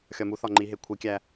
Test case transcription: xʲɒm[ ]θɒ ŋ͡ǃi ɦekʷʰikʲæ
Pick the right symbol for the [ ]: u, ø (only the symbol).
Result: u